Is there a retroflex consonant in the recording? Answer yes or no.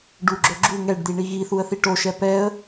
yes